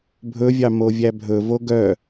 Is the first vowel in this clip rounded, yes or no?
yes